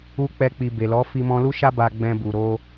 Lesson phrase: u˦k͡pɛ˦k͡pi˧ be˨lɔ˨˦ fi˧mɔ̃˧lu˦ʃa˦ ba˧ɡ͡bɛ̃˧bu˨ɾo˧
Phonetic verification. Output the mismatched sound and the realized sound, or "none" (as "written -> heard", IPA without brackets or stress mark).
none